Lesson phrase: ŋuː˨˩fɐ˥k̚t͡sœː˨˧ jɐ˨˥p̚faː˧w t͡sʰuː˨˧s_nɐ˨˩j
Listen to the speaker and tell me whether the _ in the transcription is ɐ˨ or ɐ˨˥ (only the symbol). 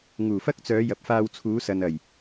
ɐ˨